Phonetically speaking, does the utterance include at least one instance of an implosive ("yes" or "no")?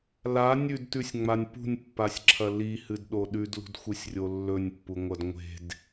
yes